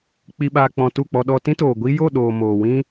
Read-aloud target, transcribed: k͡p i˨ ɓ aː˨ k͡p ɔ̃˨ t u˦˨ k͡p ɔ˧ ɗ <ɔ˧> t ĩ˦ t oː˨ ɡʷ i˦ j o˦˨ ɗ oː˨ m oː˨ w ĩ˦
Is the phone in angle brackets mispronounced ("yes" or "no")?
no